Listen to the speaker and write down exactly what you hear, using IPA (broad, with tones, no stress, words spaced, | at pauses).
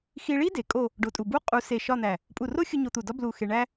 xi˧ɭi˥ de˩˧kʼo˥˧ | ɖo˧˩tʼu˧˩ bu˥ qʼu˧se˧˩ ʃɒ˥˧n̪æ˧˩ | pʼu˧˩ro˥xʲu˧ ɲo˧t̪u˧˩dɒ˥ blu˧˩xe˧ ɳæ˥